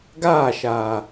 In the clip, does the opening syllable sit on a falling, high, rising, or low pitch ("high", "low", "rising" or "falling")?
falling